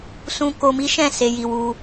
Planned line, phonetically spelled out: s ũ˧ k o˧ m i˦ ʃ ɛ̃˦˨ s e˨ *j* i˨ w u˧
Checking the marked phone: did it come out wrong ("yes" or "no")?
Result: no